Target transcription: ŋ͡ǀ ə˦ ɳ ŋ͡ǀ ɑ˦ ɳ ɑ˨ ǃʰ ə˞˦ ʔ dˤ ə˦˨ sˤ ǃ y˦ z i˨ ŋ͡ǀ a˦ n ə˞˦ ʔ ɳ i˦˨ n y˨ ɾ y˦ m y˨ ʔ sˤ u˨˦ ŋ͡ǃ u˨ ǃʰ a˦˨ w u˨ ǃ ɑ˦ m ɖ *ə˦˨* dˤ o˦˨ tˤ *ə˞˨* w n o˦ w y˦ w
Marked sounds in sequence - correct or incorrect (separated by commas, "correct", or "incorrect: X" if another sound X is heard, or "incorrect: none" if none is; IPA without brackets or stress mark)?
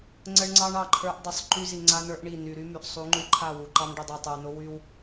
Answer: correct, correct